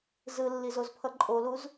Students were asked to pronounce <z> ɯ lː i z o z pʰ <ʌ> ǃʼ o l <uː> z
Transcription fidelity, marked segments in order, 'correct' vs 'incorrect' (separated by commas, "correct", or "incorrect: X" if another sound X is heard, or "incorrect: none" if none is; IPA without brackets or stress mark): correct, correct, incorrect: u